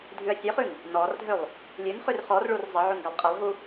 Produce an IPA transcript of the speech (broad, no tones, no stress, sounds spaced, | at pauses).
dʱ ʉ ɐ̯ sʲ ø χ ʉ ŋ | n ɔ r dʱ ø lˠ | lʲ ʉ n χ ʉ r χ ɔ r ɭ u r zˤ ə ʕ ʉ ŋ ɡ a lˠ qʼ ə lˠ ɦ u